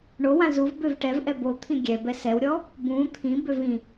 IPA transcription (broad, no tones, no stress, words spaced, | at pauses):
ɳowã zuvbøv ʈɛv ʔɛbot̪ʰĩ ɡʲɛbɛ sɛwɾʲɔ | bũ t̪ʰĩbøv ĩ